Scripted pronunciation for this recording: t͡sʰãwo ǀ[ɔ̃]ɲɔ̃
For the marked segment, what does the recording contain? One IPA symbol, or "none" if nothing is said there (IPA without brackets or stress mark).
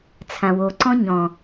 ɔ̃